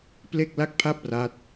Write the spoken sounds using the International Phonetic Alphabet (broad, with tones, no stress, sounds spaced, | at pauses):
p l e˥˩ k̚ l a˥˩ k̚ pʰ a˥˩ p̚ r a˦˥ t̚